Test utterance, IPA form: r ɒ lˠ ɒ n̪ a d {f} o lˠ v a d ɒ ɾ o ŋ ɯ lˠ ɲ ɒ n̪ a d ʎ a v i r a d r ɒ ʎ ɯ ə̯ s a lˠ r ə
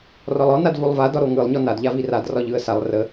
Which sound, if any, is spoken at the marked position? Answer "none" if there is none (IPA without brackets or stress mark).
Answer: v